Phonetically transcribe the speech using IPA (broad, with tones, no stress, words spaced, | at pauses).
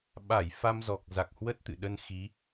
ɓa˧˩j fa˧mzɔ˨˩k̚ za˨˩k̚hwə˦˥t̚t̪ɨ̰˧˨ɗə˧n xi˨˦